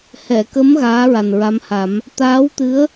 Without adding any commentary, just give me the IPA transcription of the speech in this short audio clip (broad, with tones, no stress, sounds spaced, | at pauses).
h ɛ˨˩˨ k ə˧˥ m ɣ aː˧˥ ɹ a˨˩ n ɹ a˧˥ m h a˨˩˦ m | t̪ aː˧˥ w t̪ ɨ˧˥ ə̯